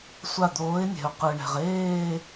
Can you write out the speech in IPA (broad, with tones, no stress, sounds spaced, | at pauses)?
sʷ a˧˩ d̪ oː˨˦ ɪ̯ nʲ ɛ̤˩ ʊ̯ q ɯ˩ ɳ ɛ̤˩ ʁ eː˥˧